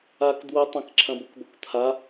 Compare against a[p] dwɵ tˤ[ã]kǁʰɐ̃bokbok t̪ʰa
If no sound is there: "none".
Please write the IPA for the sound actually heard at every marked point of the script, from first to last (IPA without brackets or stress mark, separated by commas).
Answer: k, ɐ̃